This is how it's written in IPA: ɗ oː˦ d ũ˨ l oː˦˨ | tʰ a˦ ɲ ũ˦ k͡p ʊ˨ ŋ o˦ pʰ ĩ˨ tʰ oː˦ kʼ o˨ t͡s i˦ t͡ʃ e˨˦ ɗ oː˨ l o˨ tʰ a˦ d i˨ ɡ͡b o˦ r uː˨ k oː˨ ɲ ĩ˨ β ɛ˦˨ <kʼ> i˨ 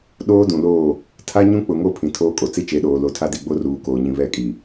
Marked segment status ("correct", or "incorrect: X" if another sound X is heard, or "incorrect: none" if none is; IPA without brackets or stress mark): correct